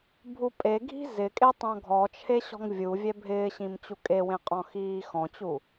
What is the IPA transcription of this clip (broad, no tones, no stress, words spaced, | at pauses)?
bʱupʼe ɡʱi̤zɪkʼetˤ ɔ̃ɡʱɔt͡ʃʰe ɕɔ̤ŋvʲu vʲɛbʱɪːɕĩm t͡ɕukʼewẽ qʼɔ̃xiːxɔ̃t͡ɕu